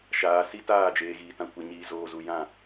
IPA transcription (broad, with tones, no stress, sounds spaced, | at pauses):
ʃ aː˨ s i˦ t aː˦˨ d͡ʒ eː˨ ɣ iː˨ t ã˨ kʷ ɛ˨ ɲ iː˨ z oː˨ z u˨ j ã˦˨